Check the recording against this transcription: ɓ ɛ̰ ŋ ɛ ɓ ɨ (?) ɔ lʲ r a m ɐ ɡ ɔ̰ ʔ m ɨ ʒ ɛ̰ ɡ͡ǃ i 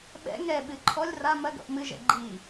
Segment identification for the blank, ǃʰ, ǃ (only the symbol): ǃʰ